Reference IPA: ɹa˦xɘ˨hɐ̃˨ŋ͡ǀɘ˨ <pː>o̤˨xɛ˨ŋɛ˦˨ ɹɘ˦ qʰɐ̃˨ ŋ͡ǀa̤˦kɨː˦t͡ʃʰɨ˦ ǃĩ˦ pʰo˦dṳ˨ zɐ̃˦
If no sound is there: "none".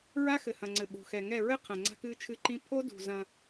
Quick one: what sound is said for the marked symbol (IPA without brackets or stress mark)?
ɓ